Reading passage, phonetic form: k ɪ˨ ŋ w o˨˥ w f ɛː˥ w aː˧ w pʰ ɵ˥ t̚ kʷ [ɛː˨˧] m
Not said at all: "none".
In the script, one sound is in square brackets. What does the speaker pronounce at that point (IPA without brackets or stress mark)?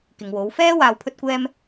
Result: ɛː˥